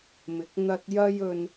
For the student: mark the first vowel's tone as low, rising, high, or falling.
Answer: rising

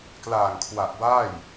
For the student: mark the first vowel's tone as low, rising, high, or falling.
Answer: low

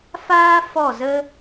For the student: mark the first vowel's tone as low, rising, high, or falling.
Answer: high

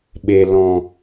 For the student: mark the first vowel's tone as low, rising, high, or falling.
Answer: low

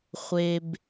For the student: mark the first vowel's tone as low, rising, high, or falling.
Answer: high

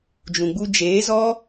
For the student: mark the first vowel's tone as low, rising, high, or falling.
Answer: low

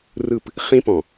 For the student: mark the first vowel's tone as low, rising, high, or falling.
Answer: falling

